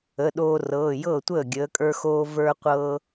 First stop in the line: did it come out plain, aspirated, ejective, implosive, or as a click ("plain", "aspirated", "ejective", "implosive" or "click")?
implosive